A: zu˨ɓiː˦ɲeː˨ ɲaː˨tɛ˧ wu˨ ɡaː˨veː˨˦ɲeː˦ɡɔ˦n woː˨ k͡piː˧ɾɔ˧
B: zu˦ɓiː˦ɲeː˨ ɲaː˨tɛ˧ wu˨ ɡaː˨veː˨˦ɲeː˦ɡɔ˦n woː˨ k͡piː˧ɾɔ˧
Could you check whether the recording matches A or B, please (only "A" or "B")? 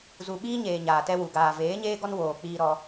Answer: A